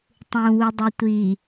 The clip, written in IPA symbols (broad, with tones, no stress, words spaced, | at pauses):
tˤũː˨wu˨dˤi˨ tʷiː˨